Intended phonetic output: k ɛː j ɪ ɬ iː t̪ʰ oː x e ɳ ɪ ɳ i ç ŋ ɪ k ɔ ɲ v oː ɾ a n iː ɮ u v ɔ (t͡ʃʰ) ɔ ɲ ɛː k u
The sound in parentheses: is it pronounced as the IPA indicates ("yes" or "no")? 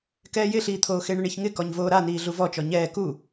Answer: no